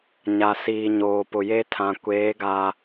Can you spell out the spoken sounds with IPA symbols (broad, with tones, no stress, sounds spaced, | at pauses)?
ɲ a˨ s iː˨ ɲ oː˨ p ʊ˨ j e˦ tʰ ã˨ kʷ eː˨˦ ɡ a˨